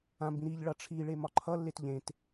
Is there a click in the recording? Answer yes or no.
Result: yes